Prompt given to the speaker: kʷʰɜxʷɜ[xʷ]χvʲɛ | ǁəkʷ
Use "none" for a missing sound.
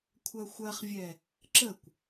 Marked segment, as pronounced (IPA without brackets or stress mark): none